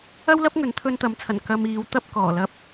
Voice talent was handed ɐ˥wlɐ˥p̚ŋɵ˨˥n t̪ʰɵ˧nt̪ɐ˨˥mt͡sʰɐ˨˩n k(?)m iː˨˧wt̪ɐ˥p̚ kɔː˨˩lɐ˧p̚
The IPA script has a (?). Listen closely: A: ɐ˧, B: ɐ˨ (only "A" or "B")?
A